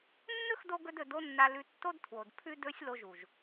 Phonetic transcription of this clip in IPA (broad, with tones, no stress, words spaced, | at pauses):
nːɵ˦xdo˧ ɡɵ˦dɵ˧do˦nːa˧ lʉ˧tːo˦dtʰwo˨d pʰʉ˦dɵ˦sʲ lo˧ʒu˨ʒ